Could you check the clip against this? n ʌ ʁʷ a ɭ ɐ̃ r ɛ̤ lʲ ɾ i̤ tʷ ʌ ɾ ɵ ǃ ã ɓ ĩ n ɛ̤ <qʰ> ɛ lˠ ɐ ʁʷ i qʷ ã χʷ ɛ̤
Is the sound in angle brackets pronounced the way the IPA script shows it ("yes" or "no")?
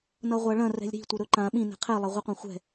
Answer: yes